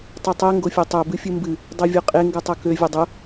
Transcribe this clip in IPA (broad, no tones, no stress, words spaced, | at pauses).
tˤetˤe ŋɡofʲetˤø bɨfʲɨmbɨ | dˤevʲoqʼe ŋɡɨtˤokø vʲʊdˤʊ